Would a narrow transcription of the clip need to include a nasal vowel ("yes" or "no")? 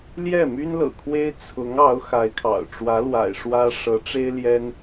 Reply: no